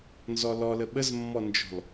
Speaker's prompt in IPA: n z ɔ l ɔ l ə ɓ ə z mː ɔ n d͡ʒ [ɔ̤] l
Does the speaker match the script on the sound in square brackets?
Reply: yes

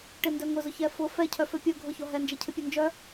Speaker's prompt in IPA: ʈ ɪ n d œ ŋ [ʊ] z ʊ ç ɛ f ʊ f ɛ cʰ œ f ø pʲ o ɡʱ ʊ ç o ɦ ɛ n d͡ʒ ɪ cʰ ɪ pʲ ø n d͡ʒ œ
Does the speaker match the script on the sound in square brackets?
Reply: yes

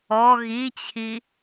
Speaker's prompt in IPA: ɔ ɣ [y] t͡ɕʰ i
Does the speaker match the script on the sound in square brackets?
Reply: no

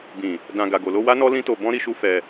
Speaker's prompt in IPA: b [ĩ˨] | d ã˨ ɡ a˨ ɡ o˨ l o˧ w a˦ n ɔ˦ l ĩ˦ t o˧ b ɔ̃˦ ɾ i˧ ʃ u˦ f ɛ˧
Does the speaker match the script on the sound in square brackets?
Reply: yes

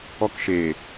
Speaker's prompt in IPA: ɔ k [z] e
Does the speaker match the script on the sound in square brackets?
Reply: no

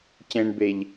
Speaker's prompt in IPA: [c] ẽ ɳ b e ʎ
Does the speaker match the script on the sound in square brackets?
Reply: yes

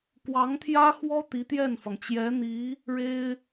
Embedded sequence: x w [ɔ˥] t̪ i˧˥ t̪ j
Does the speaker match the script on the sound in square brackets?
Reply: yes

